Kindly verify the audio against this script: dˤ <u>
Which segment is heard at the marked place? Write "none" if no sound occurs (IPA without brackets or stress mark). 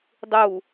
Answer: u